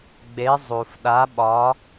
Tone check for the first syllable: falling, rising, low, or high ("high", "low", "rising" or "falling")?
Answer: rising